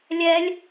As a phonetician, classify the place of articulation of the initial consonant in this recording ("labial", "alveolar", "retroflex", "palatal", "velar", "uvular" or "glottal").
alveolar